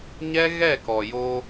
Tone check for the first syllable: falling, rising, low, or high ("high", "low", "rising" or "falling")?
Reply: high